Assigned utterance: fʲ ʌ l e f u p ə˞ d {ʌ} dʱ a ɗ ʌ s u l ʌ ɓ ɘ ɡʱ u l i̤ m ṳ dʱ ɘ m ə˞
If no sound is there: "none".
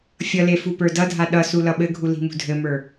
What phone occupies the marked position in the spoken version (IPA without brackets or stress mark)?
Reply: ʌ